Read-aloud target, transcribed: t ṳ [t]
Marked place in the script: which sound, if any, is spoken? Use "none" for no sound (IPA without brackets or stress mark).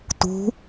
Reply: none